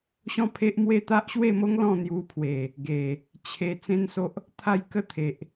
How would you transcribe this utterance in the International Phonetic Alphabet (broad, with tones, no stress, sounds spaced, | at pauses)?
ɕ ɔ̃˥˧ pʰ e˦ ʔ m w e˥˧ t̪ a˦ ʔ ɕ w e˥˧ m o˦ ŋ l ɔ̃˥˧ n̪ j u˧ pʰ w e˨˩ | ɡ e˨˩ | t͡ɕʰ e˧ t͡s ẽ˦ n s o˦ ʔ | t̪ʰ a˥˧ j k ə˥˧ t̪ʰ e˨ ʔ